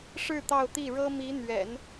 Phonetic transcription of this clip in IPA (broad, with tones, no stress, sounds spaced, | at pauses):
ʂ ɻ̩˥˧ t̪ ɑ˥˧ ʊ̯ t̪ i˥˩ ɻ ɤ˥ m i˧˥ n̪ ɥ ɛ̰˨˩˦ n